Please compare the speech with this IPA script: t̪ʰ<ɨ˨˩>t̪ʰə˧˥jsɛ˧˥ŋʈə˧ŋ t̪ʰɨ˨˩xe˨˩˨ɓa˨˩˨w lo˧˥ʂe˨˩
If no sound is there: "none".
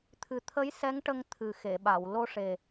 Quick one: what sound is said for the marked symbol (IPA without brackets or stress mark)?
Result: ɨ˨˩